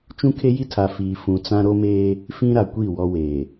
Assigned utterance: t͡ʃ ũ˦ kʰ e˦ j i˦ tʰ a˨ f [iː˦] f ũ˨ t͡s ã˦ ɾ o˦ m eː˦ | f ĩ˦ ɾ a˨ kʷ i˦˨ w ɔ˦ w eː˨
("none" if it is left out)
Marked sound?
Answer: iː˨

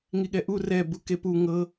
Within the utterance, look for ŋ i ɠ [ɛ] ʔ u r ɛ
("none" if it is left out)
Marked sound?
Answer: ɛ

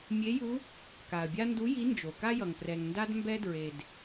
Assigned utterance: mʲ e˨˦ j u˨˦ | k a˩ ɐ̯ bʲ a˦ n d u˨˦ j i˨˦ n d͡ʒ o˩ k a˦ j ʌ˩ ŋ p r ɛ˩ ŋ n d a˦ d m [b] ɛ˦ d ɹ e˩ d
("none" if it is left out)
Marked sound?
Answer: b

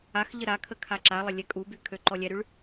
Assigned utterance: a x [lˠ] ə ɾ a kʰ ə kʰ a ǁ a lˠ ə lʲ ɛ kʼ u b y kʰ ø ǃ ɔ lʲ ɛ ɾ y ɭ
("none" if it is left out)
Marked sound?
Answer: ʎ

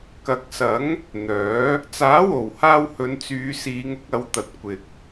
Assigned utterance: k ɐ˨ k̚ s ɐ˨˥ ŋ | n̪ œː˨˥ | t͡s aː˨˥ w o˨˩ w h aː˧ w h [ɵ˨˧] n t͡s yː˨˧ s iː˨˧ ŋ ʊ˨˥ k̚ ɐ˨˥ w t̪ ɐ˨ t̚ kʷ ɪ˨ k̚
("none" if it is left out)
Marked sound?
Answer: ɵ˨˧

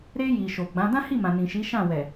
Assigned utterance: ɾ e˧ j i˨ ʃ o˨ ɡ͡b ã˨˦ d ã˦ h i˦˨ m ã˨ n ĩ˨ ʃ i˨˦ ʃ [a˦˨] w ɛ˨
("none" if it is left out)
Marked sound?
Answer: ã˦˨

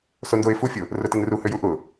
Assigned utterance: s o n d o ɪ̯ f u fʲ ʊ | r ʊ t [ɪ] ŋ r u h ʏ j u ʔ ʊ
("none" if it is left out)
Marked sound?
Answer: ɪ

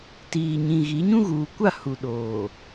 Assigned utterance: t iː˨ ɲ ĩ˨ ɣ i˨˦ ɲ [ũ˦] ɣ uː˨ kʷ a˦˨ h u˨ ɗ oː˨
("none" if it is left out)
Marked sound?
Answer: ũ˦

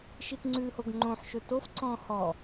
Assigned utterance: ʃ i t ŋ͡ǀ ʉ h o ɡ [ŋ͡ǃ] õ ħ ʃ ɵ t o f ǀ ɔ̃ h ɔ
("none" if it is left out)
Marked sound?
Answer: ŋ͡ǃ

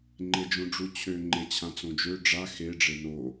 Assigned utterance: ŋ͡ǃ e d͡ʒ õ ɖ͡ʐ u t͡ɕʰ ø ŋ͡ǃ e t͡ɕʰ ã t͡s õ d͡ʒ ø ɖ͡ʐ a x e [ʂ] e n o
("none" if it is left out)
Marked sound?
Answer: ɖ͡ʐ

